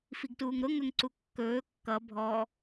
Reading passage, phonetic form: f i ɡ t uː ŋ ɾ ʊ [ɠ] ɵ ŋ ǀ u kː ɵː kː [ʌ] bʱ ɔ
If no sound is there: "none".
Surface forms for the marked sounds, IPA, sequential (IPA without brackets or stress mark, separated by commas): ŋ, ʌ